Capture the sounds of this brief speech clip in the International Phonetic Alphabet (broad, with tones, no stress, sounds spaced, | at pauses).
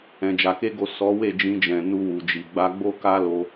ɛ̃˧ d͡ʒ a˧ k e˦ ɡ o˦˨ s ɔ˨˦ w e˦˨ d͡ʒ ĩ˧ d͡ʒ ɛ̃˨ n u˧ w u˨ d͡ʒ i˨ ɡ͡b a˧ ɡ͡b o˦ k a˦ l o˧